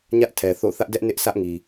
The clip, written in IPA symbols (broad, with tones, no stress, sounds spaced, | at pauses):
ɲ ä˦ ʔ tʰ ɛ˨ θ o̰˦˨ θ ä˦ ʔ d ɛ˦ ʔ n ɪ˦ ʔ s ä˦ ʔ ŋ i˨